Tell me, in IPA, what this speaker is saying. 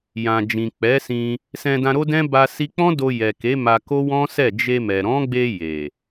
j ã˨ d͡ʒ ĩ˨ k͡p ɛ˨˦ s ĩ˧ | s ɛ̃˧ d ã˧ ɾ o˦ d ɛ̃˦ b a˧ s i˧ k͡p ɔ̃˦ d o˧ j ɛ˨ k e˨˦ m a˧ k o˦ w ɔ̃˦ s ɛ˦˨ d͡ʒ e˧ m ɛ˨ ɾ ɔ̃˨˦ ɡ͡b e˧ j e˨

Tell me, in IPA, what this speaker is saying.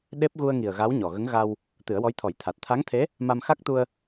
ɗ e˦˥ p̚ ɣ u˧ ə̯ ŋ i˨˩ ə̯ ɣ a˧˥ w ɲ ɔ˨˩ ɣ ə˧˥ ŋ ɣ a˧ w | t̪ ɨ˨˩˦ ə̯ w ɔ˧˥ j t̪ʰ ɔ˨˩˦ j t̪ʰ a˨˩ t̚ t̪ʰ a˧˥ ŋ t̪ʰ e˧˥ | m a˧ m x a˦˥ k̚ t̪ u˧ ə̯

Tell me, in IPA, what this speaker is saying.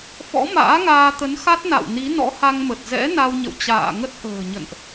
f ɔ̰˧˥ m a̰ː˧˥ ŋ aː˧ t̪ ə˨˦ n x a˦˥ t̚ n a̰˧˨ w n i˨˦ n ɔ̰˧˥ h a˧ ŋ m ə˨˩ t̚ z ɛ̰˧˥ n a˧ w ɲ ə̰˧˨ w t͡ɕ a̰ː˧˨ ŋ ə˦˥ t̚ ʔ ə̤ː˨˩ ɲ ə̰˧˨ n ʔ

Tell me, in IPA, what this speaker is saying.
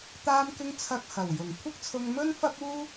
t̪ aː˧ m k ɪ˧ ŋ t͡sʰ ɐ˨ k̚ h ɐ˨˩ w j ʊ˨˩ ŋ kʷʰ ɪ˥ k̚ t͡sʰ ʊ˧ ŋ m ɵ˥ n f ɐ˥ p̚ uː˥

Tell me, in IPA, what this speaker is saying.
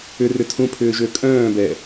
ʏ r ʏ tʰ ũ pʰ ʏː ʒ ø kʼ œ̃ː b ɛ

